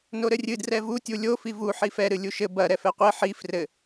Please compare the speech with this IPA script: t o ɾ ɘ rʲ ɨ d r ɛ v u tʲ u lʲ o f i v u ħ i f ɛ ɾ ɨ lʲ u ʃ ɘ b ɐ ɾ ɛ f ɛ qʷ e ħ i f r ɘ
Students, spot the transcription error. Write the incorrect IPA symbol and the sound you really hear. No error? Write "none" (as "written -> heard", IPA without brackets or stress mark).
t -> n